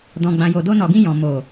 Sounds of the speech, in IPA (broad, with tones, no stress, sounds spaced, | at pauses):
d ɔ̃˨ ɡ͡b ã˨ j o˨ d o˧ n ɔ˨ ɡ ĩ˧ j ɔ̃˨ m o˨